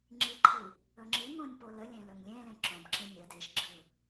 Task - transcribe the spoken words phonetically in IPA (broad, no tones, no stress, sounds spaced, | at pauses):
ŋ͡ǁ i ǃʰ i | ɵ ŋ͡ǁ i ŋ õ nʲ p o l ə lʲ ẽ l ɵ ŋ lʲ ẽ l ẽ ǁ õ b ǁ ẽ nʲ ə d e ʃ ɡ͡ǁ ɯ